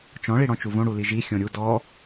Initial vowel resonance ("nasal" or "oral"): nasal